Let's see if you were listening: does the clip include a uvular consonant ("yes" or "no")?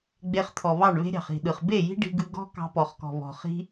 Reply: yes